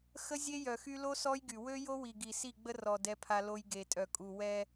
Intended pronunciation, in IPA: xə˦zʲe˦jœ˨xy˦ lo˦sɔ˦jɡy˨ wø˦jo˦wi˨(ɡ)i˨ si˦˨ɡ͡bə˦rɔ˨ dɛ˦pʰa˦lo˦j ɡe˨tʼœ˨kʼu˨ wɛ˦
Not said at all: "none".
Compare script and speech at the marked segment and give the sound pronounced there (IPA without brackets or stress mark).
ɡ